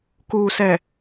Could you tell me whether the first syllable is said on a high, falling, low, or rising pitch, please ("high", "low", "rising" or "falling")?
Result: low